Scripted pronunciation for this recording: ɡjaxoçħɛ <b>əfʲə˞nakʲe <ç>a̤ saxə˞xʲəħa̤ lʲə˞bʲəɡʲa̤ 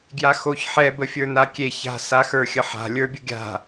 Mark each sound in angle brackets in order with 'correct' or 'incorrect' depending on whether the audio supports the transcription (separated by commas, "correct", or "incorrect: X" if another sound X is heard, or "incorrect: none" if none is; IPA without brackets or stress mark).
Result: correct, correct